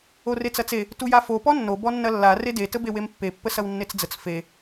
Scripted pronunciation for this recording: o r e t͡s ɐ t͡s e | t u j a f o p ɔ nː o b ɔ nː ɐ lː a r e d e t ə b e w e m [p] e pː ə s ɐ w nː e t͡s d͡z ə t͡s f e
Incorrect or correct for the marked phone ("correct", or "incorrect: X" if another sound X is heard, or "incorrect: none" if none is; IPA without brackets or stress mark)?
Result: incorrect: pː